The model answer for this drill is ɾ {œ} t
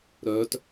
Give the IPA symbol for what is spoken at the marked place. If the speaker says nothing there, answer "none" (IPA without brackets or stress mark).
œ